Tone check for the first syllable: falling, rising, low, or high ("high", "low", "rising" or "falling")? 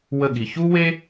falling